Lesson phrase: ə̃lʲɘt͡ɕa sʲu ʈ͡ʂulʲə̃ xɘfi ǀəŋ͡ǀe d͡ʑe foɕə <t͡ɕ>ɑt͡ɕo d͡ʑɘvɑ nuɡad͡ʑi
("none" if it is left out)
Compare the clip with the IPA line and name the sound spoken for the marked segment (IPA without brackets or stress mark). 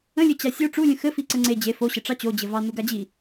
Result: ʈ͡ʂ